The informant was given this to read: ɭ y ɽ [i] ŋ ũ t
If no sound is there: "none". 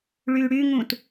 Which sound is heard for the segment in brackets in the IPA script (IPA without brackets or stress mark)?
y